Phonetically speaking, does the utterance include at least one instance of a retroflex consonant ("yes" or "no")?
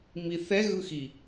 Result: no